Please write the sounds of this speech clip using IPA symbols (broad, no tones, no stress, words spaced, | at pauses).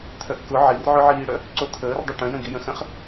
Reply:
t̪ʰœʔkʊ ʕirʕʊʕiːɽœ | ǀot̪ʰəːrdˤə ʈœ̃jə̃ɡijə̃ xə̃χ